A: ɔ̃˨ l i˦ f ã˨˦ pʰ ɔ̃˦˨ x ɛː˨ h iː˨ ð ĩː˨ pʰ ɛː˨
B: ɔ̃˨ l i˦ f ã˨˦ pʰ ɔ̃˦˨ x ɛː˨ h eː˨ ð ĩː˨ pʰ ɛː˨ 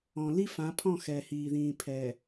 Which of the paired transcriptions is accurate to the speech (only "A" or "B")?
A